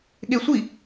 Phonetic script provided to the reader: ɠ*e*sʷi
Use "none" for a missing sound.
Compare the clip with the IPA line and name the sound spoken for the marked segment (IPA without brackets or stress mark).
e